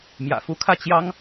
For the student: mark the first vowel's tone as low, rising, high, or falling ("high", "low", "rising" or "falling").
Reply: low